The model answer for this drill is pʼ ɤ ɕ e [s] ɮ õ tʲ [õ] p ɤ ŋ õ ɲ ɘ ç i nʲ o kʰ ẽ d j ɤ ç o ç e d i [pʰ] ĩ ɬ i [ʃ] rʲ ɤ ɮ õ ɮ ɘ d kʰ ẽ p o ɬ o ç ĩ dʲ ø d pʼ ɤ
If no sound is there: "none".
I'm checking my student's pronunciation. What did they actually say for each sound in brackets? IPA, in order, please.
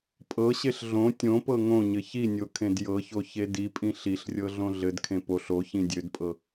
ɬ, õ, pʼ, ɬ

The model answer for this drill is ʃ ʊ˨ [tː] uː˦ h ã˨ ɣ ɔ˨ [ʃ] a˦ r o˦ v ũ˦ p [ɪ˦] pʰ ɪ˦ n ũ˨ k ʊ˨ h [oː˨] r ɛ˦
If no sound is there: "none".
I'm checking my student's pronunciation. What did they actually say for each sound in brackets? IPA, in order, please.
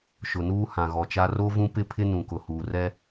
n, t͡ʃ, ɪ˦, uː˨

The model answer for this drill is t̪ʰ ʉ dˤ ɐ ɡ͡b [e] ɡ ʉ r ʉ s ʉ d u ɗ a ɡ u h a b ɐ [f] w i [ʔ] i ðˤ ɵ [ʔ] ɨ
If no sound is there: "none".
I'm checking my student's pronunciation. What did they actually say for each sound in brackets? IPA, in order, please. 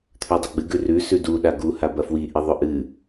ɨ, f, ʔ, ʔ

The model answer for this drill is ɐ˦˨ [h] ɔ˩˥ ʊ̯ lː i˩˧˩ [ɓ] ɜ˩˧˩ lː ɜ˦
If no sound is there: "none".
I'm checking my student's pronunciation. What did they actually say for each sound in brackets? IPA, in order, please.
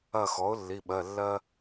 x, ɓ

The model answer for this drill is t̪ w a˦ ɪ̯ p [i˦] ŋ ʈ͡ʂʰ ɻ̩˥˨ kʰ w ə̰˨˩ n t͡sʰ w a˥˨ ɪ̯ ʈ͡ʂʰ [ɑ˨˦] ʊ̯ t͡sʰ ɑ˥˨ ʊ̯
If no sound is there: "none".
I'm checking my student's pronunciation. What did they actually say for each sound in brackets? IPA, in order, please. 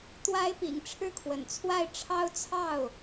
ḭ˨˩, ɑ˦

